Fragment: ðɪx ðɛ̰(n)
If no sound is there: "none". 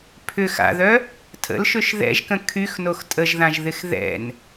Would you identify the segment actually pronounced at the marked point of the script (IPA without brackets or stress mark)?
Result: n